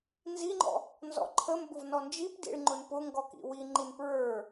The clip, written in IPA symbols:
n z i ŋ͡ǃ ɔ̰ | n z ɔ̰ ǃʰ ə m b ʊ v n ɔ n d͡ʒ i p d ḭ ɭ ŋ͡ǃ ʊ n p ʊ ŋ ɡ ɔ k ḭ w i ŋ͡ǃ i n p ɹ ə˞

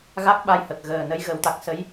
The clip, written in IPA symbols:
ɣ a˦˥ k̚ ɓ a˧ j h ə˨˩ k̚ ɣ əː˨˩ n ə˧˥ j ɣ ə˨˩˦ w t̪ a˨˩ k̚ s ə˧˥ j

